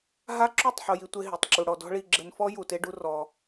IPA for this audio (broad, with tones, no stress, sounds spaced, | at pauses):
ɦ a˦ ǁ u˦˨ tˤ ħ o˦ j i˦ tʷ e˦ ɦ i˨ tˤ ǁ u˧ ɽ ɔ˧ d ɔ̤˦ ɭ i˧ ɡ͡ǁ ɘ˧ n f ɔ˦ j u˧ t e˦ ɖ u˦ r ɔ˧